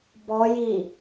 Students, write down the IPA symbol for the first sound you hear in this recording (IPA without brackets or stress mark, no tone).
b